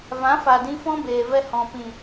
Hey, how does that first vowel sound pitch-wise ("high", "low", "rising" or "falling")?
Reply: rising